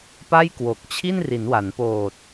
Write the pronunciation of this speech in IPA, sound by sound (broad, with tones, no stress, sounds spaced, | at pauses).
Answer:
p a˥˩ j k w o˨˩ k̚ t͡ɕʰ i˥˩ n r i˩˦ n w a˩˦ n p oː˨˩ t̚